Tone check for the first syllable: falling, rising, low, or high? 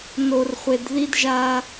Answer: low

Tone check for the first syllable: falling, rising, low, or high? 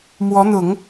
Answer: rising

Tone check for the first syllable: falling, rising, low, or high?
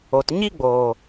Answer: low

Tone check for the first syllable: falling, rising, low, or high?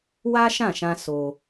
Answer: high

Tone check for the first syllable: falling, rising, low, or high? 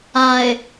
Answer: low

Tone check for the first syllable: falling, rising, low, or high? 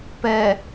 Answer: low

